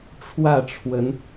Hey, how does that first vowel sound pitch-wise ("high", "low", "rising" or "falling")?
falling